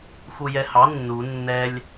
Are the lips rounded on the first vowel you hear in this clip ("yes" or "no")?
yes